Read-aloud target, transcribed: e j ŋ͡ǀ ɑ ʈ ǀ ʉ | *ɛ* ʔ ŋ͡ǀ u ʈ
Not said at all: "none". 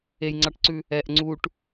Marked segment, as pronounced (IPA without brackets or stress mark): ɛ